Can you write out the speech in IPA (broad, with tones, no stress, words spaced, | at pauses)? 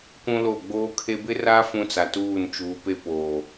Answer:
kʷũ˦lo˦˨ ɡ͡boː˦kʰe˦ bɪ˦ra˦ fũ˦t͡sa˨tuː˦˨nt͡ʃuː˨˦ pe˦poː˨